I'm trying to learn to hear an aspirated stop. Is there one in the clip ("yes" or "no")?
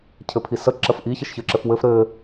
yes